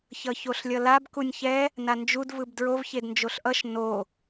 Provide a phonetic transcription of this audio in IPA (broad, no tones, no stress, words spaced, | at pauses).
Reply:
çʌçoɬlʲʌlab kunʲçɛ | nand͡ʒud vɯbdɹov çednd͡ʒoɬʔʌʃ no